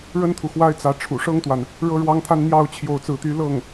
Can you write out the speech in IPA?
ɻə˥nt̪ʰu˨xwa˥ɪ̯t͡sä˧˥ ʈ͡ʂʰṵ˨˩ʂɤ˥ŋt̪wa˨n | ɻɤ˥ɻwɑ˥ŋt̪ʰa˥n n̪jɑ˥˧ʊ̯ t͡ɕʰjo˥˧ʊ̯t͡sɹ̩˥˩t̪y˥ lɤ˥˩ŋ

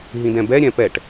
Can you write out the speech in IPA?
ɦĩdɛ̃bɛ ɾʲɛ̃pɛʈ

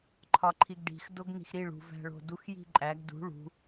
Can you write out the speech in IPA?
ǃʰɒǃʰiɡɖi̤x doɡni̤xɾiɭ ṳ væ̤ɭo̤dux ji̤ǃʼæɡ dṳ ɭṳ

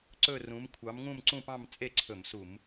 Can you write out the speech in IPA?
ǀɵ˥˧rũ˨˥m kʷʰɑ˨˥mŋũ˥˧mǀũ˥˧pɑ̃˥˧m t͡sʼe˥˧ǀʰɵ˧˩˧msu˧˩˧m

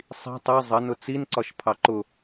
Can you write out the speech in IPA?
sˤi̤ tˤe zˤə nʊt͡sin ǀɒʃpʰɑǃʊ

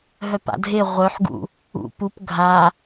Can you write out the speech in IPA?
ɦœpa̰dʱe ʁʷœħɡṵ | ṵpup ɡʱa

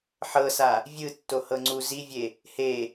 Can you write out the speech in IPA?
ħɤsa | vʲɯ tːohɤŋ͡ǀu zivʲe | he

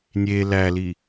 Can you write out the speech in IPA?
nʲe læli

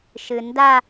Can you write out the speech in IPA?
ʃɨnda

